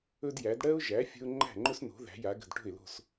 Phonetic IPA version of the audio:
ɵ˥ d j æ˩˥ d ɽ ɜ˥ ʊ̯ ʒ æ˩˥ fʲ ə̤˥ ʊ̯ ŋ͡ǃ æ̤˥˩ ŋ͡ǃ ɵ˥ s n o̤˩˥ ð æ̤˩˥ j a˩˥ ɡ ə̤˥˩ d ʈ o̤˥˩ ɪ̯ l o̤˥˩ s

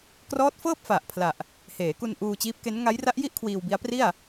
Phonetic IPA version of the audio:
k r ɔː˦˥ t̚ f ɤː˥˩ p̚ f a˨˩ ʔ pʰ l a˨˩ ʔ | h eː˩˦ k u˧ n ʔ uː˧ t͡ɕ iː˦˥ p̚ k e˦˥ n ŋ a˦˥ j r a˦˥ ʔ j i˥˩ ʔ kʰ w iː˧ w b i˦˥ a̯ p r i˥˩ a̯

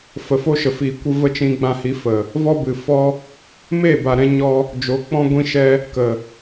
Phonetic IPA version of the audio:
f ə˨ f o˦ ʃ ə˨ f iː˨ kʷ ɨ˧ v ə˦ t͡ʃ ĩ˧ ɡ͡b ã˧ h i˨˦ f ə˨ | v ɔ˦ b ɨ˨ f ɔ˦ | m eː˦˨ b a˨ ɾ ɛ̃˧ ɲ ɔ˧ | d͡ʒ o˨˦ k͡p ɔ̃˦ ɡʷ ĩ˦ ʃ ɛ˦ | k ə˨

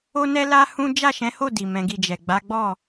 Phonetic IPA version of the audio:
o˦ n ɛ˦ l a˦ h ũ˦ d͡ʒ a˦˨ ʃ ɛ̃˨˦ h o˦˨ d i˨ m ɛ̃˨˦ ɡ i˦˨ d͡ʒ ɛ˨ ɡ͡b a˨˦ ɡ͡b ɔ˦˨

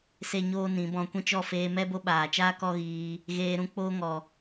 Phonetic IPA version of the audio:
s e˦ ɲ oː˦ n ĩ˨˦ b ɔ̃˧ kʷ ĩ˦ t͡ʃ ɔ˦˨ f eː˧ m ɛ˦ b o˧ ɓ aː˨ t͡ʃ aː˦ k ɔ˦ ɣ iː˧ | ɣ eː˧ ɾ ũ˦ k͡p oː˦ ŋ ɔ˨

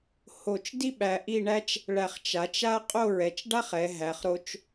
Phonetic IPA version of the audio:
h o˧˩ t͡ʃ d i˥ ɓ æ˧ ʔ i˥˧ ɳ æ˥ t͡ʃ | ɭ æ˧˩ χ t͡ʃ a˩˧ t͡ʃ a˥ qʼ o˥˧ ɹ ɛ˩˧ t͡ʃ ɖ a˥ χ ɛ˩˧ ɦ æ˩˧ χ ɾ o˧ t͡ʃ

